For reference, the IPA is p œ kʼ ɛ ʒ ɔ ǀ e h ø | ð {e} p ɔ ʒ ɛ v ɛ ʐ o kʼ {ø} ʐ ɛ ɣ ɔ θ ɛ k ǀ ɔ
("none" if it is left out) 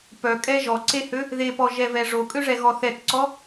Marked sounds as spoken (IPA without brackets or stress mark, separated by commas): e, ø